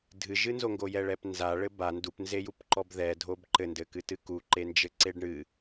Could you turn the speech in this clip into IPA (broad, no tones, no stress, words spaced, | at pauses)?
dʱɨʒɨnzo ŋɡojɛɭɛpnza ɭɘba ndupnzejupǃɔb ðɛdʱob ǃɘndɘkɨtɨ kuǃe nd͡ʒɘǀeɖɳɨ